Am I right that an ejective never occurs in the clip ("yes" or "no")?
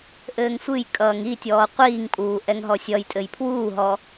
no